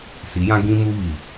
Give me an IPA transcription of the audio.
si˨˦jã˦ ɡĩ˦ mu˦βi˨

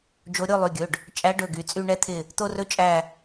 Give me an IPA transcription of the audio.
d͡ʒo˨˦ ɾʲo˦˨lˠy˩˧˩ɡʲɵ˩˧˩ɖ | t͡ʃʼæ˨˦ ɖɵ˩˧˩ɡy˩˧˩ t͡sʼy˦˨ɳɛ˦˥t̪ʰɪ˦˨ | t̪o˦˨rɵ˦˥ t͡ʃʼæ˦˨

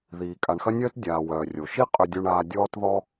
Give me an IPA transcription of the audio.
ðiː˩ kʼa˩ɳxɐ˥nʲœː˥t dʲaː˩ wœː˩rʲo˩ʃi˥ qʼʏ˧dʲu˧ɳaː˧ dʲɔː˥tðɔ˥

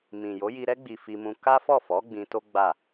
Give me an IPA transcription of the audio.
mĩ˨ jo˨˦ji˧ɾɛ˦ ɡ͡bi˧fi˧mũ˧ ka˦fɔ˦˨fɔ˨˦ ɡ͡bĩ˧to˦ ɡ͡ba˦˨

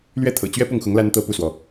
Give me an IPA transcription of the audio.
lɥɛ˥˩t̪ʰɤ̰˨˩t͡ɕɥɛ˥pʊ˥˩ŋ xʊ˧˥ŋ la˥nt̪ɤ˥˧ pu˥˩swɔ˩

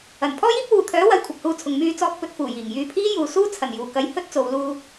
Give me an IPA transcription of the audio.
ɐ˨˩n pʰɔː˥jiː˥p̚ wuː˨t̪ʰœː˨˥wɐ˨˧j kʷʰɐ˨p̚huː˧t͡sʰʊ˨ŋ myː˧t͡sɔː˧k̚ pɵ˧t̚fuː˨˩jiː˨˩ŋ jyː˧pʰiː˥juː˨˧ suː˥ t͡sʰɐ˨˩njuː˨˩kɐ˨˧j hɵ˥t̚t͡so˨˧w luː˧

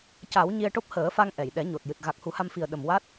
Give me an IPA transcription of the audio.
ca˨˩˦w ɲi˧ə̯ʈo˦˥p̚ həː˨˩˦fa˧ŋ ʔɛ˨˩˨j ɗɛ˨˩˦ɲo˨˩t̚ jɨ˨˩t̚ ɣa˨˩k̚hu˨˩˦ha˧mfi˨˩ə̯ ɗə˨˩mwa˦˥t̚

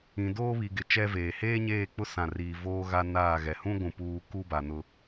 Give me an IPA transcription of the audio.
ĩ˨doː˦βi˨ɡɪ˨ t͡ʃɛ˦veː˨ heː˦ɲeː˦˨k͡pʊ˦ sã˦˨riː˦ voː˦ɣa˦ naː˦˨ɣɛ˨ hũ˦ɡʷũ˨ puː˦ ku˦ba˨nʊ˦

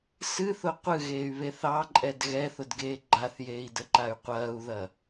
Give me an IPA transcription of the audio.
sɨθʊ qʷɨɣeːy̯βe θɑǃʼɛd ɣɛθʊdɡeː ɡ͡ǃaθjeːi̯dəǃay̯ qʷɐːu̯ðɐ

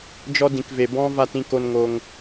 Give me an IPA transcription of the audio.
d͡ʒɔ˧dĩ˨kve˨ bɔ̃˦ va˧tĩ˧ko˧nŋo˧ŋ

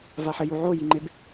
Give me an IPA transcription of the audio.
vaħɘju ʕojiŋ͡ǃeb

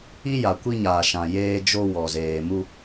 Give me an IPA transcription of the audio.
i˦ja˨kʷi˦ɲaː˨ ʃã˨jeː˦d͡ʒo˦ wɔ˨zeː˨ mu˦

